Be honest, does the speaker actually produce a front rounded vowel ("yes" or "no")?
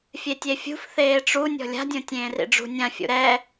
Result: no